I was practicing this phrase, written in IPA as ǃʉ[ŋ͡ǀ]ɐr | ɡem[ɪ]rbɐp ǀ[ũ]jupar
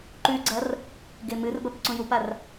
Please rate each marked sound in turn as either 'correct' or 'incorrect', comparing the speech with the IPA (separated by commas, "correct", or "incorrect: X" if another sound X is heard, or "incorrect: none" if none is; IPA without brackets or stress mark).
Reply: incorrect: ɡ͡ǀ, incorrect: ɨ, correct